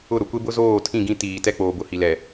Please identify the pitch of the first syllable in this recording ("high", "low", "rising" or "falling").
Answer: falling